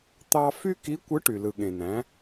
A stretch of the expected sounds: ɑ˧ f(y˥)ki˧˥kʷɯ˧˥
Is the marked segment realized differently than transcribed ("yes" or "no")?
no